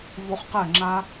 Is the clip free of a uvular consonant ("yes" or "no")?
no